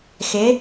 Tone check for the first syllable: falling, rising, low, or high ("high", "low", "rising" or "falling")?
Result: rising